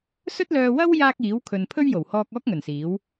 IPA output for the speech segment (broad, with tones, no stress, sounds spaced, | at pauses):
s ɵ˥ t̚ l œː˧ w ɐ˥ w j aː˧ k̚ iː˨˥ w kʰ ɵ˨ n pʰ ɵ˥ ɥ j o˨˩ w h ɔː˧ k̚ ɔː˥ k̚ ŋ ɵ˨˩ n s iː˨˥ w